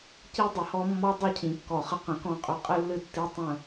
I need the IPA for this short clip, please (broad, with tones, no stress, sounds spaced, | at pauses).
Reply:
c i˦ dˤ ɨ˨ h ɔ˦ mː ɔ˦ dˤ i˦ cʰ ĩ˨ kː ɔ˨ χ ə˦ q ə̃˨ k ɔ̃˦˨ qʼ ʏ˦ qʼ ɨ˦ lː ɨ˦ tː i˦ tˤ ə̃˦˨